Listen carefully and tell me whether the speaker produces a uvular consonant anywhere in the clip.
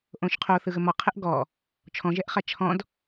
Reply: yes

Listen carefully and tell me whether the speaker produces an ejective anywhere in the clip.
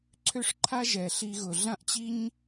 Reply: no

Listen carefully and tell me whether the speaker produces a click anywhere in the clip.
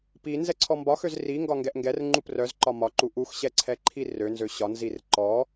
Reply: yes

